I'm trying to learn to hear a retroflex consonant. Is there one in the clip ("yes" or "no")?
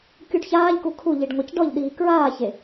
yes